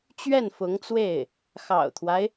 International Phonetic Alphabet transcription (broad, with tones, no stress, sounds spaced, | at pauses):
t͡ɕ ɥ ɛ˥˩ n f ʊ˧˥ ŋ t͡s w e˥˩ ɪ̯ | x ɑ̰˨˩ ʊ̯ t̪ʰ w a˦ ɪ̯